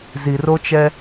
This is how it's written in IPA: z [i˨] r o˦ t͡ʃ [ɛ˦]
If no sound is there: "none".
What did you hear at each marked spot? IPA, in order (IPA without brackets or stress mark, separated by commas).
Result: i˨, ɛ˦